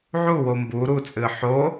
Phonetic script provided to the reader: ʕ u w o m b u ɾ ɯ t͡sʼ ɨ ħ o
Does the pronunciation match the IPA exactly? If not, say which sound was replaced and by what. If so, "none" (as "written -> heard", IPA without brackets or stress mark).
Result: ɯ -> u